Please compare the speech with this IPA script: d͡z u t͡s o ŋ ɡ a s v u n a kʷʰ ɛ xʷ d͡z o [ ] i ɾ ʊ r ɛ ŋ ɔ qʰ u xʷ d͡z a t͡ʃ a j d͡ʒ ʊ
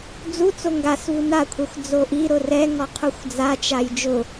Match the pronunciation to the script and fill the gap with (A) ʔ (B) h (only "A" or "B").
A